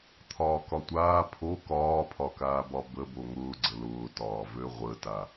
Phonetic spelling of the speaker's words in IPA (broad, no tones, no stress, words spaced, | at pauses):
t̪ʰɒːkɒtʷaː pʰo kɒːpʰɒkaːbɒ bəbo ŋʊːɡ͡ǀə lʊːtɒː vøʁʷəta